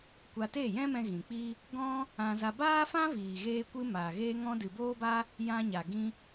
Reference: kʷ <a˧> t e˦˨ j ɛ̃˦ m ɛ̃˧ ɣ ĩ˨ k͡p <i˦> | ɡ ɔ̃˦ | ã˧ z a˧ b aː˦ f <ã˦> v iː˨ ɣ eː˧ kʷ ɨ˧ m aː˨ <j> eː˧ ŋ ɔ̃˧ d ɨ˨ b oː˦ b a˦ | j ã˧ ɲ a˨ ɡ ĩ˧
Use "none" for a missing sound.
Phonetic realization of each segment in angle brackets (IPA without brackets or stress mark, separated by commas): a˧, i˦, ã˦, ɣ